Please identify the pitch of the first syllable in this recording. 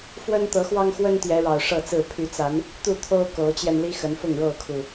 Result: high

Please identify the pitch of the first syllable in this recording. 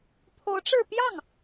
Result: rising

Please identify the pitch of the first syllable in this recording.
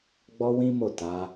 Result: high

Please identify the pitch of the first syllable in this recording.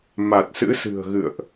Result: low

